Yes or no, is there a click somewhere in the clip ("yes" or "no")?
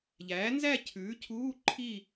yes